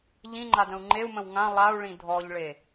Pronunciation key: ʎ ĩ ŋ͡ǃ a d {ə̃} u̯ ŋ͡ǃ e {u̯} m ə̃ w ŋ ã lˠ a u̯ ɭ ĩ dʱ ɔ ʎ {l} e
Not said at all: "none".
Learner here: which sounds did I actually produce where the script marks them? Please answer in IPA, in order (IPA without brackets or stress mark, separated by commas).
ə̃, u̯, ɭ